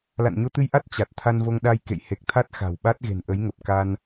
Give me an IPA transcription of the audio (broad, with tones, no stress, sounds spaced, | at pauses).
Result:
l a̰˧˨ n ɲ o˧ t̪ ɨ˧ j ʔ a˦˥ t̚ t͡ɕ a˨˩ t̚ t̪ʰ a˧ n v o˧ ŋ ɗ a˧ j k ḛ˧˨ j h e˨˩ k̚ t̪ʰ a˦˥ t̚ x a̤˨˩ w ɓ a˦˥ t̚ ɣ e̤˨˩ n ʔ ə˨˦ j ŋ ə˨˩ p̚ k a˧ n